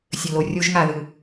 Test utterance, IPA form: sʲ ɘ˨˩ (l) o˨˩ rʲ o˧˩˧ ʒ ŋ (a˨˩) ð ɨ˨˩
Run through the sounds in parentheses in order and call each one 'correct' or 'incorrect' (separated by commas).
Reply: correct, correct